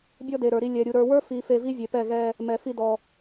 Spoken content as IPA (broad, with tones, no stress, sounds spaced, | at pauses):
bʲ ɔ˦ d e˨ ɾ ə˞˨ ɾ i˧ lʲ ɛ˨ ɾʲ u˨ ɾ ə˞˨ w ə˞˦ f i˨ f e˧ v i˦ vʲ e˨ p ɛ˦˨ ɣ ɛ˧ | m ɛ˨ f i˧ d ɔ˨